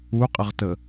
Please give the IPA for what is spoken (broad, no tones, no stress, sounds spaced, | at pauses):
u qʼ ə ʁ t ə